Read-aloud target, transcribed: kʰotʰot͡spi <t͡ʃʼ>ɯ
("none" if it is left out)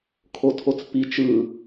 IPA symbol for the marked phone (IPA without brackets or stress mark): t͡ʃ